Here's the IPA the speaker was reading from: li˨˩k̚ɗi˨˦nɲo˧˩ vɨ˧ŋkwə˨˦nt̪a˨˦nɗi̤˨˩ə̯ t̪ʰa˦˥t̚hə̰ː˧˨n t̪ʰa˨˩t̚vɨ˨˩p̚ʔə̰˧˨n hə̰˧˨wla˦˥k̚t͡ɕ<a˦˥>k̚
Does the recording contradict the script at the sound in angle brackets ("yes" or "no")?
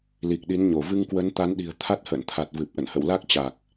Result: yes